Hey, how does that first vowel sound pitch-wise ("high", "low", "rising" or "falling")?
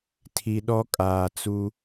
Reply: low